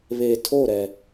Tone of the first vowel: low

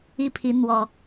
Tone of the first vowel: high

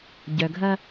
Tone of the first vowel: low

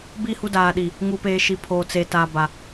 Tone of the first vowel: falling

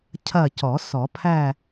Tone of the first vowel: falling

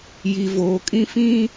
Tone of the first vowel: low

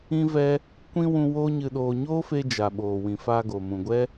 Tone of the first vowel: high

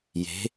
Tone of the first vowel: rising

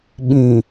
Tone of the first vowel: low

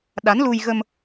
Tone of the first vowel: rising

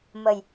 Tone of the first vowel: low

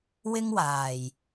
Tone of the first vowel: high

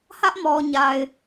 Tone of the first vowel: high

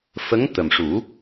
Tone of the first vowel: rising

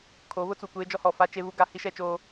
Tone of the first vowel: rising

